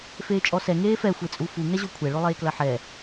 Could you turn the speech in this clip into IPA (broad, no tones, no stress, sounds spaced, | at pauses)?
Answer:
f eː t͡ʃʼ ɔ s ɛ ŋ eː f ɛ xʷ e t͡sʼ u f u ŋ ɛ ʑ o kʷʰ ɛ ɭ o lˠ eː k l ɐ ħ ɛ